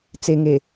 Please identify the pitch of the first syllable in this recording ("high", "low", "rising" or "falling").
low